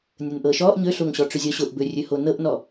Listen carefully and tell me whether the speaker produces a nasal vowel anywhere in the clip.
no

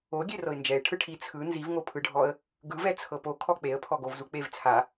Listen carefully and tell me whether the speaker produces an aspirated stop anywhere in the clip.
yes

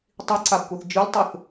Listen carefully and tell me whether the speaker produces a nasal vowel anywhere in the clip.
no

